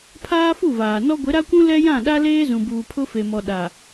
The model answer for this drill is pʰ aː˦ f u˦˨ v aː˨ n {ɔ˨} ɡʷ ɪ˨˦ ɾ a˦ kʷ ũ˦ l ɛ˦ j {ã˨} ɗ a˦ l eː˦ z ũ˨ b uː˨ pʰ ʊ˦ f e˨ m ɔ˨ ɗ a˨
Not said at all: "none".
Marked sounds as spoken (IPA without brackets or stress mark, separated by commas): ɔ˦, ã˦˨